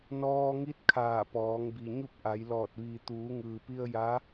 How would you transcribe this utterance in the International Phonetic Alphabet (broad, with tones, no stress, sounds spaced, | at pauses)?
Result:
n ɔː˧ ŋ i˧˥ t̚ kʰ aː˧˩ p ɔː˩˧ ŋ b i˩ ɲ u˥˨ p̚ ʔ a˩˧ j l ɔː˧˩ t̚ ʋ iː˩ t̪ uː˩˧ ŋ ɯː˩ p i˧ ə̯ j a˧˥